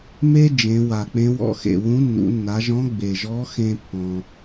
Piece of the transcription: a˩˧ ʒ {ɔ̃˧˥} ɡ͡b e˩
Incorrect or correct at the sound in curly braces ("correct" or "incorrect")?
correct